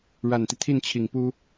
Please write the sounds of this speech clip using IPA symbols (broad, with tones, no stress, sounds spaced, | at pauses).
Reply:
ɻ a˨˩ n t̪ i˦ t̪ʰ i˥˩ n t͡ɕʰ i˨˩ ŋ p u˥